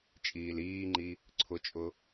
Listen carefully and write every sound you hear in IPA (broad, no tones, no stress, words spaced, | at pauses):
t͡ʃʼiːliːŋ͡ǃi | ǀʰʊt͡ʃʼʊ